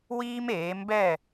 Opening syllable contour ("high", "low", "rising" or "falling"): high